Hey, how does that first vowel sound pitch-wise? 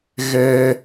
high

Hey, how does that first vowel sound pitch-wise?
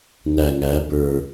low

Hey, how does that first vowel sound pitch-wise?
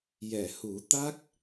low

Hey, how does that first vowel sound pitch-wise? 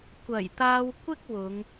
low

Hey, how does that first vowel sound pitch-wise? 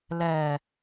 low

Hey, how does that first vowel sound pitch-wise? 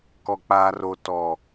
low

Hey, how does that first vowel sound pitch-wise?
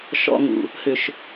low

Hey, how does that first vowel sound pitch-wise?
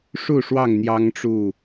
falling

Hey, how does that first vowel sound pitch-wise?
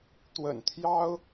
low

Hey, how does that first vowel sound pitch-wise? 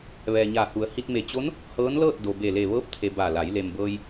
low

